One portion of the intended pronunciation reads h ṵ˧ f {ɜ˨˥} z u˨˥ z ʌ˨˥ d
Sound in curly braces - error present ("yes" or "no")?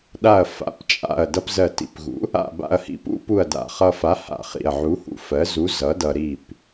no